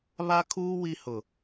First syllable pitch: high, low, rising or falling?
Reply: high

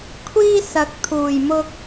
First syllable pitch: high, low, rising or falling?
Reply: high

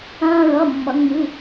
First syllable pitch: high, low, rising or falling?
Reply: high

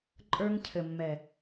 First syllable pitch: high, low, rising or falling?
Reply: high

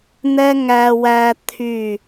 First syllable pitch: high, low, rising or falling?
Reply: high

